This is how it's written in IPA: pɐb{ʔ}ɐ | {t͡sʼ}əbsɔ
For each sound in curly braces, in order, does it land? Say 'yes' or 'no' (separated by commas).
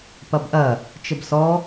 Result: yes, no